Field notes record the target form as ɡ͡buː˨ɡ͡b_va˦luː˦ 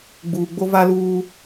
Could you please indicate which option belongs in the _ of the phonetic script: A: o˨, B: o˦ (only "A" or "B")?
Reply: B